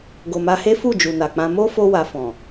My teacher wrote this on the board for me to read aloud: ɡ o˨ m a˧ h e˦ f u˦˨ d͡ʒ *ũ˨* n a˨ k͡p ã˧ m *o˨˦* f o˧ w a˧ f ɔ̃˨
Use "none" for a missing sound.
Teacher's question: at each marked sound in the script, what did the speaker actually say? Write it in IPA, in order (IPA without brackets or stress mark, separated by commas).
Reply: u˨, o˦